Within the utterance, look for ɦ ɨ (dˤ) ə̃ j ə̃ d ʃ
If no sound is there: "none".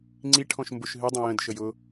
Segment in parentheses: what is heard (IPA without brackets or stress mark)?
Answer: dˤ